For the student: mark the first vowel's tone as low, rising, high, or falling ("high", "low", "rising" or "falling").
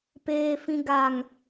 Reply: low